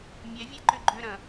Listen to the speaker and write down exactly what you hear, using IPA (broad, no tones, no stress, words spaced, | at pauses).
mʲɛvʲɛǃʏ ɡ͡ǃʏɾɐ̃